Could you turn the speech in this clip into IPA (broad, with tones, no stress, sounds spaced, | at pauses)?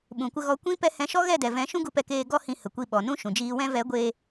ɓ ũ˨ kʷ ə˧ ɣ ɔ˧ kʷ ĩ˦ p ɛ˦ h ɛ̃˧ ʃ ɔ˦ ɣ ɛ˦˨ d ɛ˨ v ɛ̃˨˦ ʃ ũ˦ ɡ u˧ p ɛ˧ k eː˧ ɡ ɔ˧ h ĩ˧ h ə˨ kʷ i˧ ɓ ɔ˨ n ũ˦ ʃ ũ˨ d͡ʒ iː˧ w ɛ̃˧ v ɛ˨˦ ɡʷ eː˧